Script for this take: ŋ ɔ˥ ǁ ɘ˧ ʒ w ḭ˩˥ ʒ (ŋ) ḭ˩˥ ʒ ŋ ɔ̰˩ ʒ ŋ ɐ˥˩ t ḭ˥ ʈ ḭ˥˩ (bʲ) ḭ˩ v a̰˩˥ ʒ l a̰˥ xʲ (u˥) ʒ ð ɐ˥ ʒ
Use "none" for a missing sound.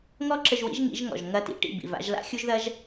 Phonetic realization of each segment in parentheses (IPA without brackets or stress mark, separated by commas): ŋ, b, u˥